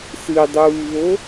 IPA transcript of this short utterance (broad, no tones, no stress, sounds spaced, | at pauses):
s ɨ dˤ uː β o